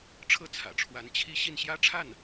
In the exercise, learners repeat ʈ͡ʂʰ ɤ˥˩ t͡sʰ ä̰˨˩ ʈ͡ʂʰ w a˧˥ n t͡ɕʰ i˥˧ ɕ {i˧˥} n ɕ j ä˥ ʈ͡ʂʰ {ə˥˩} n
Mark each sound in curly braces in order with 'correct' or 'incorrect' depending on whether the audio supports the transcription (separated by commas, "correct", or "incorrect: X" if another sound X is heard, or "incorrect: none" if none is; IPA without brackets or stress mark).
incorrect: i˥˩, incorrect: a˥˩